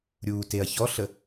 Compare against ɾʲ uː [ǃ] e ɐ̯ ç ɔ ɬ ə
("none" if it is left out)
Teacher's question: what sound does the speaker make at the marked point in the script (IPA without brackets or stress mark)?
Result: t